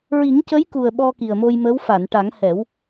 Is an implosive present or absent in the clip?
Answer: present